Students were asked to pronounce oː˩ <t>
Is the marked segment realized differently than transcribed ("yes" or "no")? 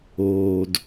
yes